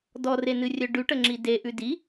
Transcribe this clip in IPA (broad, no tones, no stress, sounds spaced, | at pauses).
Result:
d ɔ r e n ɨ rʲ œ ɖ ʉ ʈ ə ŋ͡ǁ i d e ʔ ʉ d i